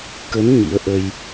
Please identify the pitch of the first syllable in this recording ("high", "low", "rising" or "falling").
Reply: rising